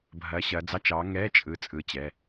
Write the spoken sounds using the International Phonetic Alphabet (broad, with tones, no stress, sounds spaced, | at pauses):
bʱ ɐː˨˦ ɕ ɐː˨˦ d͡z ɑ˧˥˧ t͡ʃ ɑ˨˦ ŋ ɛː˧˥˧ t͡ʃʼ ɯ˨˦ t͡sʼ ɯ˨˦ t͡ɕ ɛ˩˧˩